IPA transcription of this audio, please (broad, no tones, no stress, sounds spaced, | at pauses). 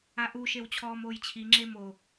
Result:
a ʔ u ʃ e w t͡ɕʰ ɔː m oː j t͡ɕʰ i ŋ͡ǁ e m o